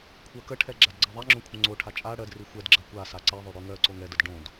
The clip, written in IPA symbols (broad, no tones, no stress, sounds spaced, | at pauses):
kʷʰ ɜ k ə ʈʰ ɛ ɡ͡ǁ a d ɡ͡ǀ ɜ ðˤ ɛ ŋ͡ǁ õ kʷʰ ə̃ ŋ͡ǀ o ʈʰ a t͡ʃʼ a ɽ ɜ d r i xʷ ɛ d ɡ͡ǁ ɜ kʷ a s a ǀ ɛ ðˤ o ɽ o ŋ ɜ ǀ o ŋ ɛ d ə d ɖ õ d